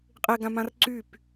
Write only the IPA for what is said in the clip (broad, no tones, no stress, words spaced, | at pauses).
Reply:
qʼeɡãmãr ǀyp